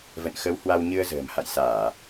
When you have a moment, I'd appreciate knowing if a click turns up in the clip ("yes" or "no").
no